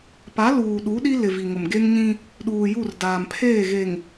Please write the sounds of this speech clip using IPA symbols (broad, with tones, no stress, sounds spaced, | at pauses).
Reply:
p a˨˦ l uː˨ ɗ u˨˦ ɗ i˦ l ɪ˨ v i˨ ŋ ʊ˨ m ɡ e˦ ŋ ɲ ĩ˦ | ɗ uː˨ j u˦˨ r d aː˨ m pʰ eː˦˨ ɣ e˨ ŋ